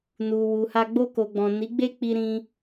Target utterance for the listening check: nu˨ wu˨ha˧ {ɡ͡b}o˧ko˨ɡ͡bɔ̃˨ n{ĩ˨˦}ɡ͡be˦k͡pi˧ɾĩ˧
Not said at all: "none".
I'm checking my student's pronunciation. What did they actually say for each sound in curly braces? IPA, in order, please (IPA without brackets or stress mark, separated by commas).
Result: ɡ͡b, i˨˦